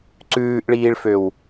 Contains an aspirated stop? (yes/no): no